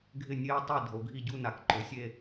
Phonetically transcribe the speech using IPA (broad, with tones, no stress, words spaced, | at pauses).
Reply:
ɡʱɪ˥˩nʲe˥˧u̯tˤe˥˧ dʱo˩˧ɡʱi˥˩ɟu˥˧na˩˧k ǃʊ˩˧sʲe˥˧